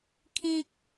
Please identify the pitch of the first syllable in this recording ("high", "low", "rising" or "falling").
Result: high